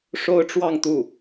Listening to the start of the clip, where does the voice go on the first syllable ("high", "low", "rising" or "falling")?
high